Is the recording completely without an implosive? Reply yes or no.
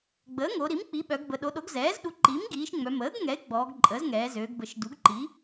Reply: no